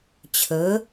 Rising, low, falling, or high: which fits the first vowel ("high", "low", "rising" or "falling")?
rising